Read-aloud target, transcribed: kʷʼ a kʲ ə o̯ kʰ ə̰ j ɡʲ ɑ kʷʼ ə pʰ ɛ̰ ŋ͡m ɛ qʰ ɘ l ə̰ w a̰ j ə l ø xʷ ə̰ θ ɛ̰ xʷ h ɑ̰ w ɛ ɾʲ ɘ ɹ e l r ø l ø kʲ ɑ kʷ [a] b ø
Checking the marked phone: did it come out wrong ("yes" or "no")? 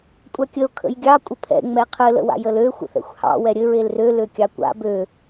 yes